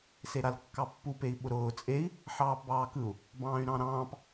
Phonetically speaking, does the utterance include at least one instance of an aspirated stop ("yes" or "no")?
no